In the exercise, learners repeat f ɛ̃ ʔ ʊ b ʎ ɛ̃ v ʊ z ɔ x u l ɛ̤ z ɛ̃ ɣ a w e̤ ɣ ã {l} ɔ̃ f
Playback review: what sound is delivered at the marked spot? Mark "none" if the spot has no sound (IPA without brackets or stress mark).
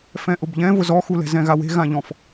ʎ